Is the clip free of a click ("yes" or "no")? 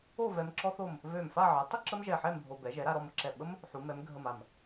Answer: no